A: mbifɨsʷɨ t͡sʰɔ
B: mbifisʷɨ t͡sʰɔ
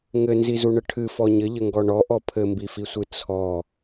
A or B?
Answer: B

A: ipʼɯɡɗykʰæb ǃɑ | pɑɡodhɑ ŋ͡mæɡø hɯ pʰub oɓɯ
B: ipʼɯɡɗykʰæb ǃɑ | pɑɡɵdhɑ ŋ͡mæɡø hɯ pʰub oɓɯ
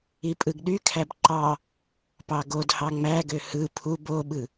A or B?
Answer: A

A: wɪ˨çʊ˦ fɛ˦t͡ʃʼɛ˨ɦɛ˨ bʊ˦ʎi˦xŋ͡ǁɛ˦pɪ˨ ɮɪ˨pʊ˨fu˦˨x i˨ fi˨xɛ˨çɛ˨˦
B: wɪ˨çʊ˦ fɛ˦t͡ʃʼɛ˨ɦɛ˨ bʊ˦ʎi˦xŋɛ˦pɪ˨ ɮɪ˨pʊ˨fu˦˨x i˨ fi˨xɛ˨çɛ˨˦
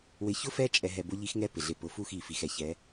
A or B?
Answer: B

